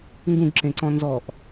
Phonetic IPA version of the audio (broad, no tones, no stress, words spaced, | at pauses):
ŋɡũɡǁẽǀɔ̃ nzɔʔ